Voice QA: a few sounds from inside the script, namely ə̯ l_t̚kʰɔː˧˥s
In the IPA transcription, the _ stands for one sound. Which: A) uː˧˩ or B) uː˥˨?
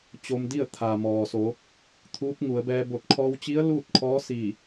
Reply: B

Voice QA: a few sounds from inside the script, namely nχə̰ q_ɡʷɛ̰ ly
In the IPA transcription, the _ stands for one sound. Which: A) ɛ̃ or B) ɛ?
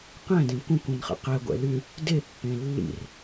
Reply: B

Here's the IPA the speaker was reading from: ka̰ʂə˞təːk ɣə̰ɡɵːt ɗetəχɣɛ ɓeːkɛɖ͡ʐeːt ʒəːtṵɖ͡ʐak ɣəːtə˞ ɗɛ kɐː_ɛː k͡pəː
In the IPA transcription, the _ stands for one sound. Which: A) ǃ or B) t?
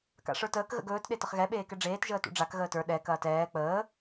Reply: B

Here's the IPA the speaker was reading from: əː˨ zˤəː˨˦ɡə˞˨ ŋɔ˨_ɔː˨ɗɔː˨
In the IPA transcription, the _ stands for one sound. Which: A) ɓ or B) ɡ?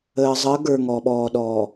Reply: A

